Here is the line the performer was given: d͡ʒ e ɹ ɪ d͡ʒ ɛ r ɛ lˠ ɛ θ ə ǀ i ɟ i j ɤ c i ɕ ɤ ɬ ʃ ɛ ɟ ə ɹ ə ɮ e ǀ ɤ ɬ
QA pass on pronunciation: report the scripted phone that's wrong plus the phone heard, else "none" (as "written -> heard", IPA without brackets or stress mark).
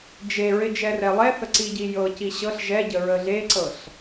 ʃ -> ʒ